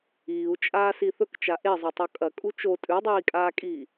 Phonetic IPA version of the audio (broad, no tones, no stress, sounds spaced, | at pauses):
iː u̯ t͡ʃʼ aː s i θ ɵ k t͡ʃ a ʔ e zˤ o tˤ o kʼ ɐ kʼ u t͡ʃ o tʼ ʉ dˤ iː kʼ aː kʼ iː